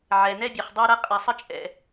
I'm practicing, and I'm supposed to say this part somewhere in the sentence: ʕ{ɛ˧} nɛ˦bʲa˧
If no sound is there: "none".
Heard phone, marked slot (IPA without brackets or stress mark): ɛ˧